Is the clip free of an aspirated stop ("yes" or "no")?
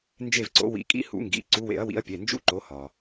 yes